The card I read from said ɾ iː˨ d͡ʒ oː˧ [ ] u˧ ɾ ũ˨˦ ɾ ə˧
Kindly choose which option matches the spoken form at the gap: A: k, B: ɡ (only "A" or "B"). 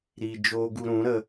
B